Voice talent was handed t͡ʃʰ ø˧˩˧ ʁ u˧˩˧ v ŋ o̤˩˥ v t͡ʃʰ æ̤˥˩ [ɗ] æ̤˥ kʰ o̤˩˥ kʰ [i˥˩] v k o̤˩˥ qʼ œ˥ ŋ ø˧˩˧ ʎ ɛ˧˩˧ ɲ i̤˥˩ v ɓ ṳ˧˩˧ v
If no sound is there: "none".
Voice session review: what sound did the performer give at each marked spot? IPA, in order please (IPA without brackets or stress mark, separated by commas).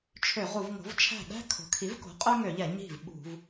ɗ, i˩˥